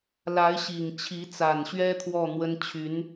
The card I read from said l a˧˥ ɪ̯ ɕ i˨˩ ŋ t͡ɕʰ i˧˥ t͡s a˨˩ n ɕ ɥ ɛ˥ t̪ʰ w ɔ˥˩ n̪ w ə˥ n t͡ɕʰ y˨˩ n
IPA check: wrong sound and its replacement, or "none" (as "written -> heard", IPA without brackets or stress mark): y˨˩ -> y˧˥